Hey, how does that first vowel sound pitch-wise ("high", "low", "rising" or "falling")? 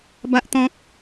high